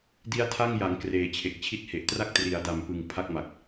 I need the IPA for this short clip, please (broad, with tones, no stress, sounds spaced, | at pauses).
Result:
d i˦˥ a̯ tʰ a˥˩ ŋ j a˩˦ ŋ k r eː˨˩ t͡ɕʰ e˨˩ k̚ t͡ɕʰ i˥˩ t̚ h e˨˩ ʔ t r a˥˩ k̚ t r i˩˦ a̯ d a˨˩ m p ɯ˨˩ ŋ pʰ a˥˩ k̚ m a˨˩ k̚